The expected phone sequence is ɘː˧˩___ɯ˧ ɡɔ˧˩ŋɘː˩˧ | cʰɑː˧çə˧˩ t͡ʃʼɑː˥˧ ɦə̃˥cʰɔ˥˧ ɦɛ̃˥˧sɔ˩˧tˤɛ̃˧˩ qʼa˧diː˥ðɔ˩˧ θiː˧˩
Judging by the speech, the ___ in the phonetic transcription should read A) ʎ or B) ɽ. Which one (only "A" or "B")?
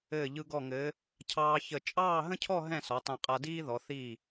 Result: A